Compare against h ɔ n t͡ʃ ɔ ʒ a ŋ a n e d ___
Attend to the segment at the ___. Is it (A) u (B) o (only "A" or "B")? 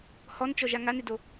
B